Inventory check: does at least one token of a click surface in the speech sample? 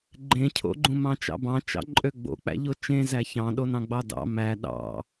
yes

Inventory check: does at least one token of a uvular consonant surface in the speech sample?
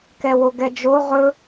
yes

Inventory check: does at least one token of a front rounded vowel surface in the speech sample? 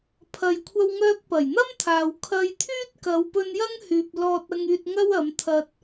yes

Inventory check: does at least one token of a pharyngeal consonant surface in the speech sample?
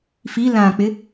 no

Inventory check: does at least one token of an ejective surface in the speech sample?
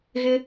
no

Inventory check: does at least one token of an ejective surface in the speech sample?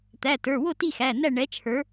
no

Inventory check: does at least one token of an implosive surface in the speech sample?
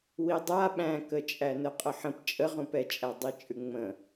yes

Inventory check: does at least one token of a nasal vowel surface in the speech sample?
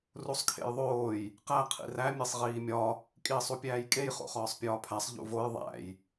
no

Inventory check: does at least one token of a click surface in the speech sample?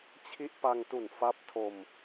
no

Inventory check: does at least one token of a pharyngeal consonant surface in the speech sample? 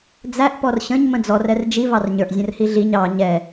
no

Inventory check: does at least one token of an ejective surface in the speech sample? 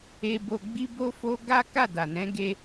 no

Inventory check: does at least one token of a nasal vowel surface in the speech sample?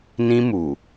yes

